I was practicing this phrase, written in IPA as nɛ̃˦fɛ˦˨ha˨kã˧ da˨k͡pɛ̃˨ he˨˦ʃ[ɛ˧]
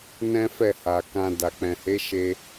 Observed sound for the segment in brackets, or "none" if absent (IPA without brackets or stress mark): e˧